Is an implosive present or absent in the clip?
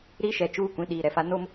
present